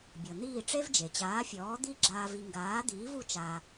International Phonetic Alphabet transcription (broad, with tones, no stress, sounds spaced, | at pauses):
bʲ ɤ˩ n̪ iː˥˩ ʈ͡ʂ e˥ v d͡ʒ e˩ t͡ɕ aː˩˥ fʲ ɔː˩˥ d̪ i˥˩ ɡ͡ǁ aː˧ v i˧ ŋ ɡ aː˩˥ d̪ iː˩˥ v u˧ t͡ʃ a˧